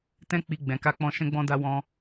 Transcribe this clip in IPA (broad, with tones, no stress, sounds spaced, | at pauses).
t ɛ̃˦ k͡p i˧ ɡ͡b ɛ̃˨ k a˧ k͡p ɔ̃˧ ʃ ɛ̃˦ ɡ͡b ɔ̃˦ d a˦ w ɔ̃˦